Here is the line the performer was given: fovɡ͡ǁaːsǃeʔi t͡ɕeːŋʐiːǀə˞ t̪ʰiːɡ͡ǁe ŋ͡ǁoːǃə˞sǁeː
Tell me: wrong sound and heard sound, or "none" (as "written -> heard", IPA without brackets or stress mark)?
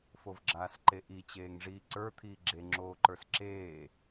none